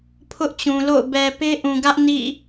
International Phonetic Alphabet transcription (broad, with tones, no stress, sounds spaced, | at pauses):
pʰ ʊ˦ ʔ t͡ɕ ũ˨ l o̰˦˨ ʊ̯ b ɛ˨ p e˦ ʔ ũ˨ ɡ ä˦ ʔ n ḭ˦˨